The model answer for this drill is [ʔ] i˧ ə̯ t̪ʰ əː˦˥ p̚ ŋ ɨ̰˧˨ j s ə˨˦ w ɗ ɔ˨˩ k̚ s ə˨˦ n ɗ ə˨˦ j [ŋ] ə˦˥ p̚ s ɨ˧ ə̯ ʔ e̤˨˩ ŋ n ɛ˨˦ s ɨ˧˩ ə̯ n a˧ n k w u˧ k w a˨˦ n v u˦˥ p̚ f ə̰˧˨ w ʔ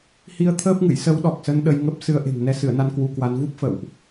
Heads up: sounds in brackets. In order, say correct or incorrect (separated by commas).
incorrect, correct